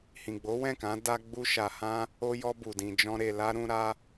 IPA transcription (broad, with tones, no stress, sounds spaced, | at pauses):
h ĩ˨ ɡ͡b o˨˦ w ɛ̃˦˨ k ã˨˦ d a˧ ɡ͡b u˧ ʃ a˨ h ã˧ | o˧ j ɔ˧ b u˨ d ĩ˨ d͡ʒ ɔ̃˧ ɾ e˨ l a˧ ɾ ũ˧ ɾ a˧